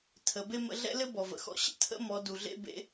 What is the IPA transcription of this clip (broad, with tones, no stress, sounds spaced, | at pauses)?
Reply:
tʰ ə˩˧ b e˥ m ə̰˧ ɮ ɛ̰˥ l ɘ˥ b ɔ˩ v ə̰˩ x ɔ̰˧˥ ɕ ə̰˥ tʰ ə̰˥ m ɔ˩˧ d u˩ ɮ ḛ˥ b ḛ˧˥